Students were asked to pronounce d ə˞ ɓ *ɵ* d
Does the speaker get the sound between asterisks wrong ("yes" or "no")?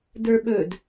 no